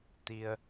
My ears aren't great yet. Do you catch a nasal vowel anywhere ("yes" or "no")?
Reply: no